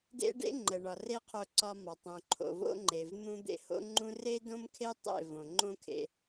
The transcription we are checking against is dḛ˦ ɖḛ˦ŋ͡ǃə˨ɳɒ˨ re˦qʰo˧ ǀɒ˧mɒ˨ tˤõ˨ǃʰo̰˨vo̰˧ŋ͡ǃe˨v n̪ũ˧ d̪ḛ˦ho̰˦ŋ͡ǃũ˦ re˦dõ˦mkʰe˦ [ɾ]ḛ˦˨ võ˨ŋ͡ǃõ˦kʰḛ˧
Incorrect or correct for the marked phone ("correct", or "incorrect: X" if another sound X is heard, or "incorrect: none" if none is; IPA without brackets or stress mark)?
incorrect: tˤ